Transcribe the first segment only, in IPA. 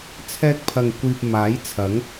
t͡sʰ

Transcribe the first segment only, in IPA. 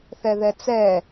θ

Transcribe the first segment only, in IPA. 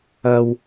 ɐ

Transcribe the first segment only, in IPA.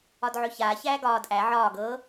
ɒ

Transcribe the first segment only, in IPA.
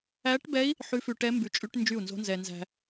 æ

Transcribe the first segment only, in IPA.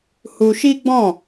h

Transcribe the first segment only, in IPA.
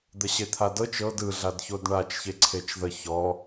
d̪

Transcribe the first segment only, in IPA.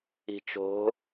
i̤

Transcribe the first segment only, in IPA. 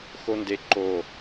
x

